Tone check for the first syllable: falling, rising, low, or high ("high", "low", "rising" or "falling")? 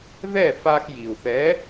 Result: falling